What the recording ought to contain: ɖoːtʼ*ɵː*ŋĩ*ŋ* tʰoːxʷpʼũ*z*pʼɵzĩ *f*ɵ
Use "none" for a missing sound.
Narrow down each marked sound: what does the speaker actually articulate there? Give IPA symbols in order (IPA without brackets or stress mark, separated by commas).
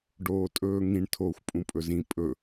ɵː, ɳ, none, pʼ